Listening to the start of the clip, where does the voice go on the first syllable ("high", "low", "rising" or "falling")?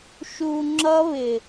low